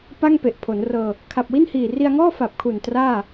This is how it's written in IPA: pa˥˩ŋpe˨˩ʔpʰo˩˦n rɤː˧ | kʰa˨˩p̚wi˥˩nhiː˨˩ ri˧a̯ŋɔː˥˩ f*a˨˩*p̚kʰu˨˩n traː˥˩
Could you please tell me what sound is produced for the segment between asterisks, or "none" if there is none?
a˨˩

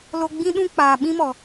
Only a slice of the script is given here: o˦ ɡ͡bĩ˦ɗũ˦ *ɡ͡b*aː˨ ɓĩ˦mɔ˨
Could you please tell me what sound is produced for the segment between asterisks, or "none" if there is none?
k͡p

